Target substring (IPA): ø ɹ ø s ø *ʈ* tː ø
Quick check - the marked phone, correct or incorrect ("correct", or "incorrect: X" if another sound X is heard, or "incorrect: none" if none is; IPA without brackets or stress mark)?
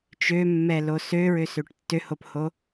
correct